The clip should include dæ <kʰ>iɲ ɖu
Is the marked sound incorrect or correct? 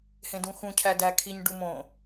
correct